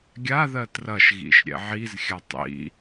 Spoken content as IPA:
ɡʲ a ð ɜ t r ɐ ʃ ɣ ḭ ʃ ɾʲ ɛ̰ ʕ i z xʲ a tˤ ḭ

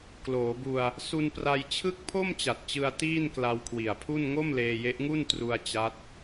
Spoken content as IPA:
k l oː˩˦ b u˧ a̯ | s u˧ n p r a˧ j t͡ɕʰ ɯ˥˩ k̚ pʰ o˥˩ m t͡ɕ a˨˩ t̚ t͡ɕ ɯ˧ a̯ t iː˥˩ n k l a˧ w kʰ w i˨˩ a̯ pʰ u˥˩ n ŋ o˥˩ m l eː˧ j e˦˥ ʔ ŋ u˥˩ n t r u˧ a̯ t͡ɕ a˦˥ t̚

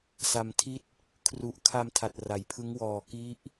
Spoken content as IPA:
s a˧ m tʰ i˥˩ t̚ | kʰ r u˨˩ ʔ kʰ a˧ m tʰ a˨˩ t̚ r a˩˦ j pʰ ɯ˦˥ ŋ w ɔː˨˩ k i˦˥ ʔ

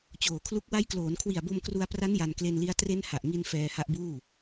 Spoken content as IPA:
t͡ɕ oː˨˩ kʰ l u˦˥ k̚ w a˦˥ j k l oː˩˦ n kʰ w i˨˩ a̯ b o˧ m k r u˧ a̯ p r a˦˥ n j a˧ n k l e˧ n l i˦˥ a̯ t r e˦˥ n h a˨˩ ʔ ŋ i˧ n f ɛː˧ h a˦˥ ʔ b uː˥˩

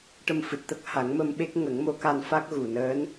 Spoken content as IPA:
ʈ ə˧ m f ɨ˨˩ t̚ t̪ ə˦˥ k̚ h a˨˩˦ ŋ m ə˧ m ɓ e˦˥ k̚ ŋ ə˨˩˦ ŋ m o˧˥ k a˧ n f a˦˥ k̚ ɣ u˨˩ n əː˧˥ n

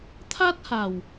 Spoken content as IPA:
t̪ʰ a˦ t̚ h a˨˩ w

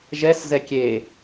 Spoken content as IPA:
ʒ ɛ s z ɛ kʲ e

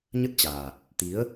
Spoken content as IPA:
ɲ ə˦˥ t̚ t͡ɕ aː˨˩ t̚ | t̪ i˨˦ ə̯

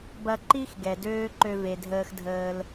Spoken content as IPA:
b ɐ˧ ǃ i˦ x ɡ ɛ˨ d øː˦ ǃ ø˧ v e˨ dʱ əː˧ x dʱ əː˧ l

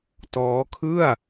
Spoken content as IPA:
t ɔː˦˥ kʰ ɯ˥˩ a̯

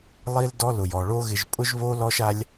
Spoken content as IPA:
lˠ i˦ l d ɔ˦ l ʊ˨ j ɔ˨ ɭ o˦ ɣ ɪ˧ ʒ pʼ ʊ˦ ʒ β o˦ l ɔ˦ ʃ a˦ lʲ

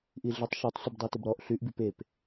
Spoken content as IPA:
ʔ i ɮ ɪ tˤ ʃ o tˤ sʷ ɪ b dˤ y t ʏ b ɾ ɔ ʔ ɬ y ʔ b y p e p

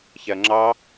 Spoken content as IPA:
ç ɛ ɐ̯ ŋ͡ǁ ɑ

